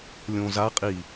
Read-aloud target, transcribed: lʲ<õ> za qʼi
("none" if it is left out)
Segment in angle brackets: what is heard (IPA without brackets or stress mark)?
õ